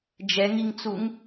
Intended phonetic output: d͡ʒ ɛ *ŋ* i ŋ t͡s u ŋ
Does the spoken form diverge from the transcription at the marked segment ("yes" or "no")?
no